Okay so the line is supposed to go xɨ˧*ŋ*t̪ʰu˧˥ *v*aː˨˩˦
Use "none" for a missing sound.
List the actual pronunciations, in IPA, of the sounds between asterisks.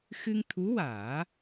ŋ, w

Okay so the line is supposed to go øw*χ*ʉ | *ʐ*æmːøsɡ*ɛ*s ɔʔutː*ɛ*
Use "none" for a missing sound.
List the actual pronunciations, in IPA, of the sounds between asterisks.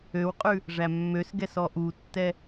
qʼ, ʐ, ɛ, ɛ

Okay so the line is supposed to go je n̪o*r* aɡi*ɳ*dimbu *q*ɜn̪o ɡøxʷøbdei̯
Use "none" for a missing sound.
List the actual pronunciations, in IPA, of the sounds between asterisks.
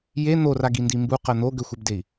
r, n, q

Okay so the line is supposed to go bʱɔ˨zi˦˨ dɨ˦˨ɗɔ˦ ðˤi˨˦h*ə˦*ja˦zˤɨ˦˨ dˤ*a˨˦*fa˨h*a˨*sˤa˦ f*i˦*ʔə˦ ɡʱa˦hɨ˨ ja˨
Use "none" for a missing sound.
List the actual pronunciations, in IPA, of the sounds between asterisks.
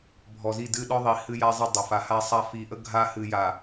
ɨ˦, a˨, a˦, i˨

